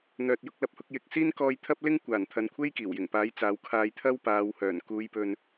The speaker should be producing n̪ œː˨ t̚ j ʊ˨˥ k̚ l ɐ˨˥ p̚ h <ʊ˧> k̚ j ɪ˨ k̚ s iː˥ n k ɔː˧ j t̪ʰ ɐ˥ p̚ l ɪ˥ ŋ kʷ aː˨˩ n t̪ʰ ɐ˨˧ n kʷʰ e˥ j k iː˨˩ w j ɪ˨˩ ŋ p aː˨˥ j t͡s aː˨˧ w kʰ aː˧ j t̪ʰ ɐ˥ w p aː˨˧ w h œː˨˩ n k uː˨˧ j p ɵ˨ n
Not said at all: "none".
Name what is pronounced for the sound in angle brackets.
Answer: ʊ˧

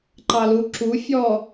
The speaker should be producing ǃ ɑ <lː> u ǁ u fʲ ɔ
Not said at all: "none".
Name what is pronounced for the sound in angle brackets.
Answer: l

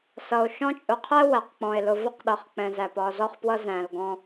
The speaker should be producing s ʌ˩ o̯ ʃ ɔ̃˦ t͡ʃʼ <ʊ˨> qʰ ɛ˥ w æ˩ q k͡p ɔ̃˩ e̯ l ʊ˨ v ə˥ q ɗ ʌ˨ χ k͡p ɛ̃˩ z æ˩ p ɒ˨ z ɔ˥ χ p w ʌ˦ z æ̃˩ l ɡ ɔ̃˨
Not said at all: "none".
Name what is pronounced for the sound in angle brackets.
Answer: ʊ˨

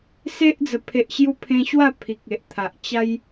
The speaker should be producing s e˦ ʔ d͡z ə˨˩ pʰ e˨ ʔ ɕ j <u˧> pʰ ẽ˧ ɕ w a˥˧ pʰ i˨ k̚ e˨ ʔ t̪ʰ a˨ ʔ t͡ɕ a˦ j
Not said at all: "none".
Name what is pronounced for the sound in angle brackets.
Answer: u˧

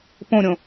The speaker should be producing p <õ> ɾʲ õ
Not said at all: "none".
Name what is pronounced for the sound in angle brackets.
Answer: õ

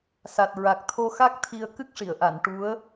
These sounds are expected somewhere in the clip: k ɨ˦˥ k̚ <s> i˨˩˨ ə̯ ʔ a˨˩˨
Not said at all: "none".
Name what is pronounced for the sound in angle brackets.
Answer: ʂ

